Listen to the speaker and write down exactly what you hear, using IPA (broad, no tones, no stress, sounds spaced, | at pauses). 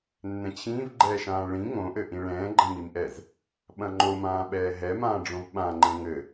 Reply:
nː ɛ̃ t͡ɕʰ ĩː v ɡ͡ǃ ɛː ʃ ãː ɭ ĩ ŋ õ ʔ ɘ ʔ ĩ ɭ ɛ̃ː ɡ͡ǃ ɐ̃ m i m ʔ ɛ z | ɓ ɐ̃ ŋ͡ǃ o m ãː ɓ ɛː ɦ ɛ m ãː ɖ͡ʐ õ v ɓ ã ŋ͡ǃ ɛ̃ ŋ ɘ